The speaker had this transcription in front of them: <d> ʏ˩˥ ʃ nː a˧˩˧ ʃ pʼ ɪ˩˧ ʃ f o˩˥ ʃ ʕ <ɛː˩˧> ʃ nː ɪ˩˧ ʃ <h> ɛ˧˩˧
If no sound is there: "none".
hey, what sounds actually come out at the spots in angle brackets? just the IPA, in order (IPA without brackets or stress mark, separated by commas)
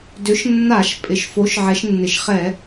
d, ɛ˩˧, χ